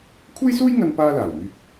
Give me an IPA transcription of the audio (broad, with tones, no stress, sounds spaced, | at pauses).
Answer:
kʷʰ e˥ j s uː˥ j ŋ ɐ˧ n p aː˥ l aː˨˩ w m yː˧ k̚